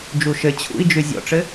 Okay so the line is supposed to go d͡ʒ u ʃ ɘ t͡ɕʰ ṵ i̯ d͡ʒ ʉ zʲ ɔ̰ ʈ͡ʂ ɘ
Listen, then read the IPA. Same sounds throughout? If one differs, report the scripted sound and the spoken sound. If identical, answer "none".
none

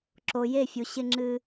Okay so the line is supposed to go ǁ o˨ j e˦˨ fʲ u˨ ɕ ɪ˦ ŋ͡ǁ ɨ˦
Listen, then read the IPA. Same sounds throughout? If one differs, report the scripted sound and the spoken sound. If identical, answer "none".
none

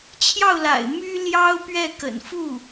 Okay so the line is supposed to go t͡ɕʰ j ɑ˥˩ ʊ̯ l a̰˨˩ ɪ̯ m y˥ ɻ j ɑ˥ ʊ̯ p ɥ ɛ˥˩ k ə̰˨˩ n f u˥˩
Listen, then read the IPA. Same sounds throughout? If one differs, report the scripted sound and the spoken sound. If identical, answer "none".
ɻ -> l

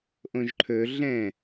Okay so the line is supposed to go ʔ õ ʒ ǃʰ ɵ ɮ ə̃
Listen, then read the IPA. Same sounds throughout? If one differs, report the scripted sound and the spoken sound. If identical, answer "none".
ə̃ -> ɛ̃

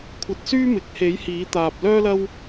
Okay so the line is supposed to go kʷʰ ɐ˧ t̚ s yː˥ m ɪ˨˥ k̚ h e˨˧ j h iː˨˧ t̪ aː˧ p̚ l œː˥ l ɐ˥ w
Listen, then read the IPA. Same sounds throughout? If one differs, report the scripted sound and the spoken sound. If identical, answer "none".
none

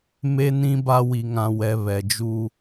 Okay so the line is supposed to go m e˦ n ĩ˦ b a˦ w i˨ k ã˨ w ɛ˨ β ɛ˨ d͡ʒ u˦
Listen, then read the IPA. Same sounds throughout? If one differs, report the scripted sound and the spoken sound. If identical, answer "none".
k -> ŋ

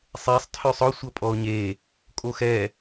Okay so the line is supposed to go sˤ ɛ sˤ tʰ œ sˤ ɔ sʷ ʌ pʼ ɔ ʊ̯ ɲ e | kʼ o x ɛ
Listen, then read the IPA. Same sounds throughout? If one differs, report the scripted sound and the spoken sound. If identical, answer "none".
none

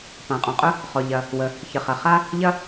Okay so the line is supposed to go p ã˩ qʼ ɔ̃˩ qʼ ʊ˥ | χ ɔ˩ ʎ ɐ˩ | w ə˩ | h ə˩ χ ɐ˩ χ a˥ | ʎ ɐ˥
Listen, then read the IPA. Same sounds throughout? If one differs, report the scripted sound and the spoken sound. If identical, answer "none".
h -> ç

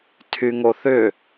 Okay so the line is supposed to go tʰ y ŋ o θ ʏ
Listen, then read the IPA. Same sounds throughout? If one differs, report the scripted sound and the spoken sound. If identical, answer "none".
none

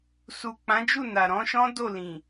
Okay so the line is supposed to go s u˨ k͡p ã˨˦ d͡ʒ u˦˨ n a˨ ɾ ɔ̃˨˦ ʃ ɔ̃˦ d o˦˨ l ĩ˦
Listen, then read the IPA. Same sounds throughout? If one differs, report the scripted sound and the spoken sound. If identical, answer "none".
ĩ˦ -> ĩ˨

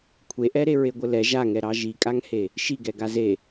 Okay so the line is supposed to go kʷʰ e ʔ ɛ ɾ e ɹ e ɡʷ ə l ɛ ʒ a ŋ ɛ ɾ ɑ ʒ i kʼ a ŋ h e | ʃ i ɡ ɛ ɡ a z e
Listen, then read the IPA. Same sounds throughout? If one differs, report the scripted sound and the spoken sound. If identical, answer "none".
none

